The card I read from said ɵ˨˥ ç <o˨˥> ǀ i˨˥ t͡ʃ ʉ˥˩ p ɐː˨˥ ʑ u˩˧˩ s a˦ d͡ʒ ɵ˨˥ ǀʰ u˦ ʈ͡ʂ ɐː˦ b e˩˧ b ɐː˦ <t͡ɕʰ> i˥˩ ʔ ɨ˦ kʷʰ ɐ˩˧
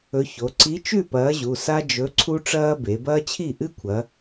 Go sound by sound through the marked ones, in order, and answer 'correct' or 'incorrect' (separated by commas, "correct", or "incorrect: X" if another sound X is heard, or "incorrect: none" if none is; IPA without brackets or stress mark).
incorrect: o˩˧, correct